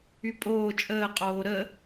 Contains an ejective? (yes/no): yes